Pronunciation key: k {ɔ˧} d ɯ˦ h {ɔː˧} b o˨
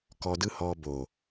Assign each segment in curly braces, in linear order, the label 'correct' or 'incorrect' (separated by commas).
correct, correct